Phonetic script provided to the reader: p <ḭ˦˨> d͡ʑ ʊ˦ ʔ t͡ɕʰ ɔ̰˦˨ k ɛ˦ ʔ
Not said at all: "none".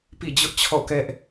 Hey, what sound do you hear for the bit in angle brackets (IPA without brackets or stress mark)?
ḭ˦˨